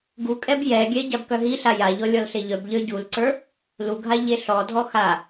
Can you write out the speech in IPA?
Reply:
ɡukʼɛb jɛɡʲɛ ɟabkœɦiɬa jaʎɔ lʲɔlɬeʎœbʎə˞ ɟulǀə˞ | luɡʱa ʎeɬɔdʱɔ xa

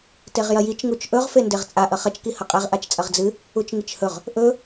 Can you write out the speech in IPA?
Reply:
teʁjɐjit͡ʃ ŋut͡ʃʔɵʁ fendeʁt͡sʼa ʔɐχɐt͡ʃ kihɐqʼeʁ ʔat͡ʃt͡sʼɐʁd͡zɨ | ut͡ʃŋit͡ʃhɵʁ | ʔɵ

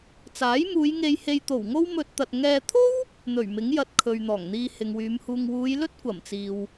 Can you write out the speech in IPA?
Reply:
t͡saː˨˥jmuː˨˧j ŋe˧jhe˧jt̪o˨˩wŋo˥w mɵ˧t̚t̪ɐ˨t̚ ŋɛː˨t̪ʰo˥w | n̪ɵ˨˩ɥmɪ˨˥ŋjɐ˧t̚ kʰɵ˨ɥn̪ɔː˨˩ŋn̪iː˧ hɪ˨ŋwyː˨˧mhuː˧ŋ wuː˨˧jlɵ˥t̚ kʷɐ˨˩mt͡siː˨w

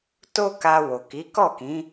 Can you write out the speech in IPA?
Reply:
to˦ka˧wo˨ki˨˦ kɔ˦˨kĩ˨˦

